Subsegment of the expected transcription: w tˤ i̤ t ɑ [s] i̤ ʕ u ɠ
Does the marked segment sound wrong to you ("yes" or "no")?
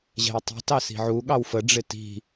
no